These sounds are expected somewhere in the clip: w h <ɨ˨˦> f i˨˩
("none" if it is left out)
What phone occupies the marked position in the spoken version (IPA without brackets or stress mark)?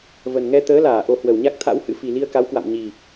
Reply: ɨ̰˧˥